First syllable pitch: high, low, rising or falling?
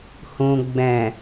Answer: low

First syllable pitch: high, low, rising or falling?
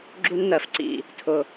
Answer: high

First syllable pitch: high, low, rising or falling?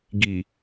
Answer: low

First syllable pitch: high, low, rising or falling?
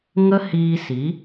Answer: high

